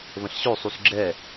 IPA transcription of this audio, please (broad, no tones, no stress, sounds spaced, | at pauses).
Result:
β ə̃ ɬ ɕ ø sˤ u s ɡ͡ǁ ɛ